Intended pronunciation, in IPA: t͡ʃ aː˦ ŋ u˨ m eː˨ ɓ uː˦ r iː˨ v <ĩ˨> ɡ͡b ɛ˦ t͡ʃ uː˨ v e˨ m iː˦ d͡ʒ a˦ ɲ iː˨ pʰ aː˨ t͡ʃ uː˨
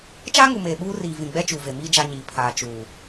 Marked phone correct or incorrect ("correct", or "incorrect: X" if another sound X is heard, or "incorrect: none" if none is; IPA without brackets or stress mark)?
correct